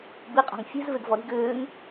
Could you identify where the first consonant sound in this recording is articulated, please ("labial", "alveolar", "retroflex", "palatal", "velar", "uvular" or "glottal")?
labial